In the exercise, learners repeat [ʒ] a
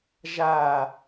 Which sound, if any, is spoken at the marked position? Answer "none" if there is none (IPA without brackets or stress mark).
ʒ